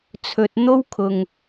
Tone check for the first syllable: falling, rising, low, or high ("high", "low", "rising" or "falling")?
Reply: low